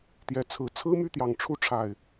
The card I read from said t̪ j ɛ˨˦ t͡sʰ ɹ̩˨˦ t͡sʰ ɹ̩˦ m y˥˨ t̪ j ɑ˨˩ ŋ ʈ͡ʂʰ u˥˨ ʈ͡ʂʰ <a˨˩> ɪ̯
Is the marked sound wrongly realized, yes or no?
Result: no